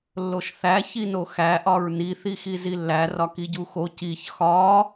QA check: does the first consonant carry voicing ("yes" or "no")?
yes